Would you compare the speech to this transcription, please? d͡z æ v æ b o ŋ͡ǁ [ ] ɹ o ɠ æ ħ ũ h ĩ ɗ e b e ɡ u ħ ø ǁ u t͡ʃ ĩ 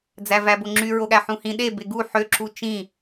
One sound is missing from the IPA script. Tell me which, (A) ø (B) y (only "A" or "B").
B